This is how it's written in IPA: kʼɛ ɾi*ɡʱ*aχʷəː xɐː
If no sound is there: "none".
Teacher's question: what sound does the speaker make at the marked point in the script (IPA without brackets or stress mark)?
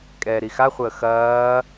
x